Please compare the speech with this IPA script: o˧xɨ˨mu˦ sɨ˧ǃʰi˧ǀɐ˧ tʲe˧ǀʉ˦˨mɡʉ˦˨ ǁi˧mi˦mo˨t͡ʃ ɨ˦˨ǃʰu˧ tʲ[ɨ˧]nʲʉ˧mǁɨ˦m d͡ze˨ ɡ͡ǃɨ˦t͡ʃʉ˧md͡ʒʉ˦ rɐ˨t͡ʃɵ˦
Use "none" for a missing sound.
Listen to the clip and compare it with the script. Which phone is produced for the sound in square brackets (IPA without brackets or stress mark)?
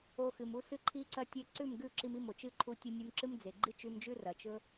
ɨ˧